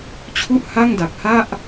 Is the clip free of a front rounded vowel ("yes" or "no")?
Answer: yes